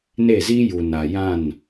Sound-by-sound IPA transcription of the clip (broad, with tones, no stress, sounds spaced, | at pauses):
n e˦˨ z i˦ j u˨ n a˨ j ã˦˨ n